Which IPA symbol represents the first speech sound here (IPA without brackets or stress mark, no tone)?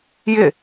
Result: j